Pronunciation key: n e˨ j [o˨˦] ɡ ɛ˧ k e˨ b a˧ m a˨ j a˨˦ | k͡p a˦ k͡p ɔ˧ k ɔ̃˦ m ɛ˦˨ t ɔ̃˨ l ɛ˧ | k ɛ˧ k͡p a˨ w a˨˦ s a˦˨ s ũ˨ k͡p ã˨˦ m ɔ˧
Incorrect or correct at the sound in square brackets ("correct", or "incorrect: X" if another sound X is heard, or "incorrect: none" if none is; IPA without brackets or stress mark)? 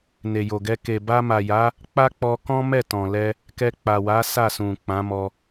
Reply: incorrect: o˨